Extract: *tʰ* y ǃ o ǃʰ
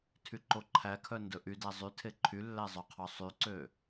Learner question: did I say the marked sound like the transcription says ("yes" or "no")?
yes